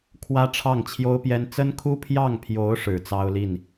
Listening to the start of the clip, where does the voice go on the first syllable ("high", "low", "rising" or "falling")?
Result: high